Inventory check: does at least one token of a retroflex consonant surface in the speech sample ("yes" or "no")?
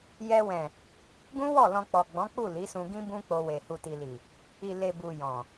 no